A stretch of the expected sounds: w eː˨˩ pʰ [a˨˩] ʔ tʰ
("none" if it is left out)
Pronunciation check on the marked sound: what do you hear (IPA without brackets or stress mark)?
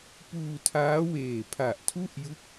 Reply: a˨˩